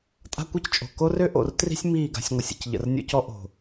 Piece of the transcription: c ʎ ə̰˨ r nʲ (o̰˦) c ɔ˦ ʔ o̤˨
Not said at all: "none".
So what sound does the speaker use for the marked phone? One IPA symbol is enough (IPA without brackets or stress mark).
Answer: o̰˦